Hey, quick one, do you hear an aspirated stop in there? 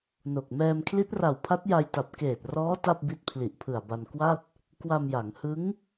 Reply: yes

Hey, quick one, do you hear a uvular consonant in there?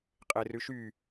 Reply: yes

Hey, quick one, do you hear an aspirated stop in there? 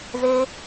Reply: no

